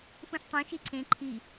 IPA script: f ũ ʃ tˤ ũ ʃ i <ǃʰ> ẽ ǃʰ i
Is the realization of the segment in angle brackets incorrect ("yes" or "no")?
yes